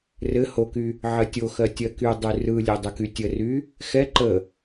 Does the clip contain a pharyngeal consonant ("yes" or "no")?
yes